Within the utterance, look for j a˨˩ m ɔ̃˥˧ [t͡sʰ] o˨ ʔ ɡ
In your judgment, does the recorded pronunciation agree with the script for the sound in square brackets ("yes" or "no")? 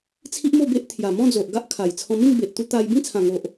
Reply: no